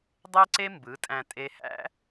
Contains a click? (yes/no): yes